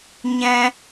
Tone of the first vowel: high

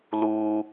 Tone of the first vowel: high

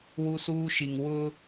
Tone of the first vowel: high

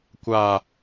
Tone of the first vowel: low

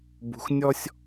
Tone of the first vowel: low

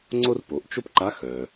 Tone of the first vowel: high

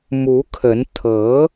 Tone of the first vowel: rising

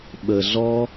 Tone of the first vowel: high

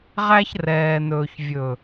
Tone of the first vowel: high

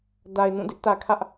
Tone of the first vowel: low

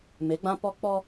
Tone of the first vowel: rising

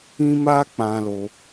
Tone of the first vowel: high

